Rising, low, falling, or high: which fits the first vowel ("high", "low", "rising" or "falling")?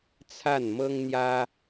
falling